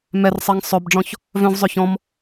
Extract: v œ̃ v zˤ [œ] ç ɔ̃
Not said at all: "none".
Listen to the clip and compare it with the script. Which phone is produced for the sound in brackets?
œ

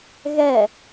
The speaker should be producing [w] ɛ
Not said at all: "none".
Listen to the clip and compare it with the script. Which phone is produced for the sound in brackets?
ɣ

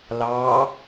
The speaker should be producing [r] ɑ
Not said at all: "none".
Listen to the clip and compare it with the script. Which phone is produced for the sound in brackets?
l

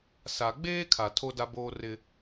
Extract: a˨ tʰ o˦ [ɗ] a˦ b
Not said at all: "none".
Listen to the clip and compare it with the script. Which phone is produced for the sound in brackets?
d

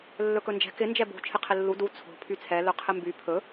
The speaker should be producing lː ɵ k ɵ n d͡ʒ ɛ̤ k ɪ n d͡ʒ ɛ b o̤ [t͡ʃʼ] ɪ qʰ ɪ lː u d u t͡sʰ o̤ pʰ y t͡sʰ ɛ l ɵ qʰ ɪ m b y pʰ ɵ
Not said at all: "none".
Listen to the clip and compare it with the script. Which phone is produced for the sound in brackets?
t͡ʃʰ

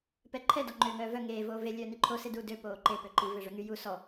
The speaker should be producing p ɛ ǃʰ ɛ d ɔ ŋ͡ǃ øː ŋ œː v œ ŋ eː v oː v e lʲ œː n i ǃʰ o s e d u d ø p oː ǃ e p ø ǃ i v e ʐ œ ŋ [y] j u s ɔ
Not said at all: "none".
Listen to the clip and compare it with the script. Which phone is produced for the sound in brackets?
y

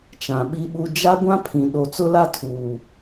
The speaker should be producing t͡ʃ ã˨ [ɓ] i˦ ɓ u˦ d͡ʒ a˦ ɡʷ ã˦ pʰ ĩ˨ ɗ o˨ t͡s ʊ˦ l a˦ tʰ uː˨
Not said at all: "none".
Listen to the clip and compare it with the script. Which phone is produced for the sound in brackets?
ɓ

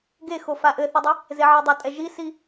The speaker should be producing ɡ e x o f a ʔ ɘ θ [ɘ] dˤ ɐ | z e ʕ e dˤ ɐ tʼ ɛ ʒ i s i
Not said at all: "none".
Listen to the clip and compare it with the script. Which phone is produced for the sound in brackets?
ɘ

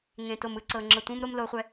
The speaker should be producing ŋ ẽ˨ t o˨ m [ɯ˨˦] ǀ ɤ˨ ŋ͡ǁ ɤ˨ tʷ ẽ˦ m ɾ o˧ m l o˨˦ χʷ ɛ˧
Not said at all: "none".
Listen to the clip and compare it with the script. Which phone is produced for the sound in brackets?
ɯ˨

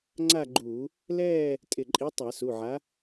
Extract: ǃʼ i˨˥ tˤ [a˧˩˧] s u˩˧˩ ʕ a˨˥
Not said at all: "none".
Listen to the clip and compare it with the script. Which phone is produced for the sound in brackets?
a˧˩˧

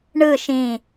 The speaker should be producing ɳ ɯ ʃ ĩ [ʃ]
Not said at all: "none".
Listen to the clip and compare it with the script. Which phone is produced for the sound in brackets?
none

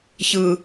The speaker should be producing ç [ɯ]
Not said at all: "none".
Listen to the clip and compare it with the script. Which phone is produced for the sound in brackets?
ɯ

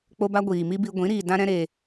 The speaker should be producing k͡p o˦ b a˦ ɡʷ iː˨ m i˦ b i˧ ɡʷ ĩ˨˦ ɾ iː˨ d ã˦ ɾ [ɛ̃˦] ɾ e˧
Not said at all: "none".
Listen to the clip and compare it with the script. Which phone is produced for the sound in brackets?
ɛ̃˦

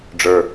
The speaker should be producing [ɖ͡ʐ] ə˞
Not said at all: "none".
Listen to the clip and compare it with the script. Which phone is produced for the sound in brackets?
ɖ͡ʐ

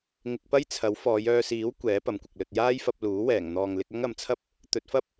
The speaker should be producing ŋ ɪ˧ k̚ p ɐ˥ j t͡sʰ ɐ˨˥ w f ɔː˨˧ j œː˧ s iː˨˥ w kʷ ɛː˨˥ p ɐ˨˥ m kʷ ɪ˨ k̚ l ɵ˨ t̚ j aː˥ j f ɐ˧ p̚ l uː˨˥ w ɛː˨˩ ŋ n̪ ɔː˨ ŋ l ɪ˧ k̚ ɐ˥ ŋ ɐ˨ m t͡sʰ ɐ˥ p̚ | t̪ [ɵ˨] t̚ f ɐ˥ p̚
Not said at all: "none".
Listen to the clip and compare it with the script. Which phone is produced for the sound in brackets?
ɵ˨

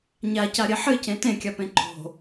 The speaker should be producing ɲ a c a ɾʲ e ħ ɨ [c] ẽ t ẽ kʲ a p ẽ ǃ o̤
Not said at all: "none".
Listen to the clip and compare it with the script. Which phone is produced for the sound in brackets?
c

